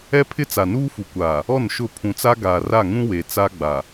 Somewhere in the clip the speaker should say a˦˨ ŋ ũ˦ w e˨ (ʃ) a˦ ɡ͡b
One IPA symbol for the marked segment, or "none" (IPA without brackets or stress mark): t͡s